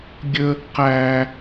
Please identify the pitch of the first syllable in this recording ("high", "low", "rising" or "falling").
high